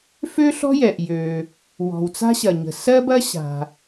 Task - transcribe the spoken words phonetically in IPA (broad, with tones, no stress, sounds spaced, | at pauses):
f ø˥ ɬ ɔ̤˥ j ɛ˩ ʔ j ø˩ | w ɔ̤˩ w t͡s a̤˥ ɕ ɐ˩ ɲ ə̤˩ s ɜ˥ b ɐ˥ ɕ a̤˩